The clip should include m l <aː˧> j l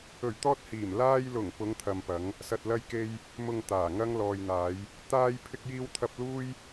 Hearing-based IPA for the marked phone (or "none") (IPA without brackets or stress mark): aː˧